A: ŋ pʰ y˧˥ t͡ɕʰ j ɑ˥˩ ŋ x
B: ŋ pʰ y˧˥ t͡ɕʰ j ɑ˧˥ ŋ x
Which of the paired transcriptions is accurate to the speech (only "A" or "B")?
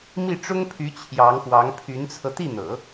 B